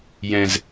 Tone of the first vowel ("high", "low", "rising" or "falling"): high